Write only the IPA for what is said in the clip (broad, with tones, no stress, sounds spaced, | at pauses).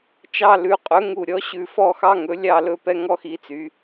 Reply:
t͡ʃ ɑ˦˨ l ʉ˩˧ qʼ ɵ˩˧ ŋ u˨˩ ɾʲ ɔ˩˥ ɕ ʉ˨˩ f ɔ˦˨ x ɑ˦ ŋ ɵ˩˥ lʲ ɑ˦˨ l ɵ˦ p ɛ˦ ŋ ɔ˦ x i˩˥ t͡s y˩˧